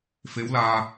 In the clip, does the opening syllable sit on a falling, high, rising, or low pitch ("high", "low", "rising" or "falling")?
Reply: rising